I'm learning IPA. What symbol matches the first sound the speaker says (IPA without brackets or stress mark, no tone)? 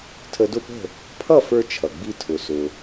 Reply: tʰ